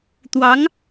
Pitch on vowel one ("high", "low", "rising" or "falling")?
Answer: rising